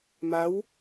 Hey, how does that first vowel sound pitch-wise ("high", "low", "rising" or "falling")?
rising